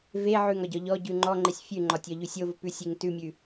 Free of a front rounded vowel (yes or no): yes